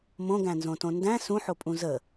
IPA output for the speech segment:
m õ ɡ æ̃ n z õ t õ n d æ̃ s ũ ħ o pʼ ũ z ə

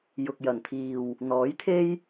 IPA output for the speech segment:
j ʊ˨ k̚ j ɐ˨˩ n t̪ʰ iː˨ w | n̪ ɔː˨˥ j t̪ʰ e˥ j

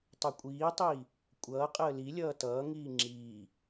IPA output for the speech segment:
tˤ u kʷʼ iː tˤ iː | kʷʼ ʌː qʼ əː l i lʲ ʌː t ʌː ŋ iː ŋ͡ǁ iː

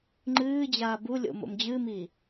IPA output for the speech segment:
ŋ͡ǃ ɨː d͡ʑ aː b u lʲ o̰ m o̰ m d͡ʑ ɨː m iː

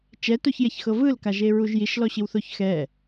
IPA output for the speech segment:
t͡ʃ ɛ t o ç j ɛ ç x ɤ v ɯ l k a ʒ e ɹ u ʒ j i ʃ l ɔ ɕ i w θ o ç x ɛ

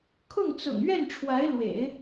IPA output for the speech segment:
kʰ ʊ˥˩ ŋ t͡s ʊ̰˨˩ ŋ ɥ ɛ˥˩ n ʈ͡ʂʰ w a˧˥ ɪ̯ l w ḛ˨˩˦ ɪ̯

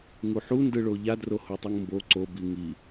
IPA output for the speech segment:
ŋ u ħ u n d ɯ ɭ o ʎ a d r o h o tˤ ɯ ŋ m b o ǀ o b i ŋ i

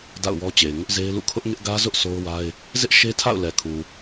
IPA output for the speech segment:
d a̰˦˨ ʊ̯ w ɔ˦ t͡ɕ e˨ ɪ̯ ŋ ʊ˦ ʔ z e˦ ɪ̯ l ṵ˦˨ kʰ ʊ˦ ʔ ŋ ɪ˦ ʔ ɡ ä˦ z ʊ˦ ʔ sʰ o˦ ʊ̯ w a˦ ɪ̯ | z ɪ˦ ʔ ʃ e˦ tʰ a̰˦˨ ʊ̯ l ɛ˨ kʰ u˨

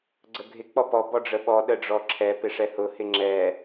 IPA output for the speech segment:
ɡ͡ǀ ə ɡʱ ɪ k͡p ɔ p ɔ b ɔ ɖ͡ʐ ə ɓ ɔ ɗ ə ɖ͡ʐ ɔ ǁʰ ɛ p ɪ ʂ ɛ h ʊ h ɪ ŋ͡ǁ ɛ

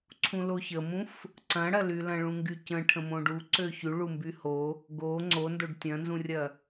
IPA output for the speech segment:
ǀʰ ũ l o ç ə m ũ f | ǀ ɐ̃ ɽ ɐ l y l ɐ̃ ɭ ũ ŋ ɡ y c ə̃ ʈʰ ə̃ m õ ɖ u ǀ ø ç y ɭ u m b y h o | ɡ o ŋ͡ǀ o n d o ɖ tʲ ɐ̃ n z ũ rʲ ɐ

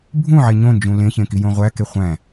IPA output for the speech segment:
bʱ ũ ʕ e ɲ õ n d͡ʒ ũ l ẽ ç ẽ k i j õ ʁʷ æ k e χʷ æ̃

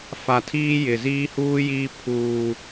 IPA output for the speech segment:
f a˨ tʰ iː˦ j ɪ˨ z iː˦ h uː˦ j iː˦ pʰ uː˦

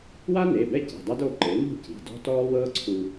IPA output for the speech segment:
w a˥ n e˩˧˩ b ɛ˥˩ c i̤˩˧˩ dˤ a˥ d o˩˧˩ ǃ e˩˥ n ṳ˥˩ c i̤˩˧˩ d ɔ̤˥ t ɔː˥ w ɤː˥ ǀʰ u˧

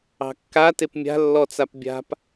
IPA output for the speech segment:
ɑ̤ kː a t e p mʲ a̤ lː ɔ t͡s a p bʲ a̤ p

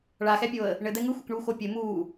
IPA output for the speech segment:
ɭ a x ɛ pʲ o ə̯ | ɳ ɘ d̪ ɛ ŋ ɯ xʷ ɘ k ɳ uː x o pʲ ɘ m uː

